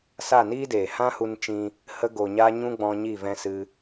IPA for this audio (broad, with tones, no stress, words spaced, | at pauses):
sa˦˨niː˦deː˨ hã˦hu˧nt͡ʃĩ˧ | hə˧ɡo˨ɲaː˧ ɲũ˦ɡ͡bɔ̃˧ɲi˦˨ vɛ̃˧ sɨ˦